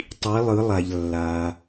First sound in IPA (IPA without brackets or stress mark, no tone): tˤ